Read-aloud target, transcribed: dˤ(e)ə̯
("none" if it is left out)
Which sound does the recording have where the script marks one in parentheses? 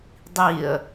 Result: i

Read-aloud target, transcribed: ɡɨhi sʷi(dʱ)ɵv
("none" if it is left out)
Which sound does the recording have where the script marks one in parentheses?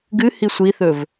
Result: θ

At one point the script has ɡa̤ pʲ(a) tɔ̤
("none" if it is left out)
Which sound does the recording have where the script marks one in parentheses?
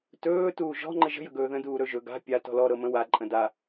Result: a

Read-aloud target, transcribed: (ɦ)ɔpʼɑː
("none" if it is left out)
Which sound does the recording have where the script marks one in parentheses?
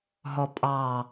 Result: ɦ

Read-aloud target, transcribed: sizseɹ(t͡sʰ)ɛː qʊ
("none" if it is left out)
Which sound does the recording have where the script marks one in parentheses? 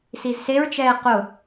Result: t͡ʃ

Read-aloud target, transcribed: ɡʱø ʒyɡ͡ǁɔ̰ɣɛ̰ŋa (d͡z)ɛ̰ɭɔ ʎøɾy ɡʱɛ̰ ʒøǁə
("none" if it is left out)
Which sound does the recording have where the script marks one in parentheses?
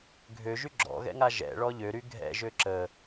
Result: ʒ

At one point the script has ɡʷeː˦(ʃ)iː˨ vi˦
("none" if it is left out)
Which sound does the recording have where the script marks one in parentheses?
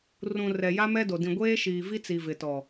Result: ʃ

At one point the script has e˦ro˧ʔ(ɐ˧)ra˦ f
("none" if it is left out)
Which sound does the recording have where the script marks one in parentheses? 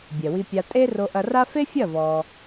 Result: ɐ˧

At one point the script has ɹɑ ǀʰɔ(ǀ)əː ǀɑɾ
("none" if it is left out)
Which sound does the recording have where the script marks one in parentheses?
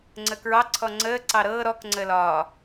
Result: ŋ͡ǀ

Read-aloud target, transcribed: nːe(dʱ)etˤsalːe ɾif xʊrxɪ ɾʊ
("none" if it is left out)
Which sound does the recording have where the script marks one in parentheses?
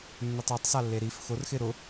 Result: tˤ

